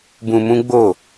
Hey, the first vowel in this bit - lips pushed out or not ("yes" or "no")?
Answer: yes